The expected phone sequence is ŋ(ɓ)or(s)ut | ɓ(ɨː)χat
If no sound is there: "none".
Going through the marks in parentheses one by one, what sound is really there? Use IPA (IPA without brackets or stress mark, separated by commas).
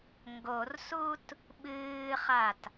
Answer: ɡ, s, ɨː